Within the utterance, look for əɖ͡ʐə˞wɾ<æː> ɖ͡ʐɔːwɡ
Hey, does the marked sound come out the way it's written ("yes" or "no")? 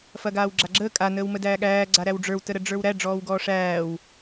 no